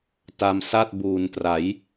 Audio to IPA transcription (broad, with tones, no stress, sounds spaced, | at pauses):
t a˧ m s a˥˩ t̚ b uː˨˩ n t r a˩˦ j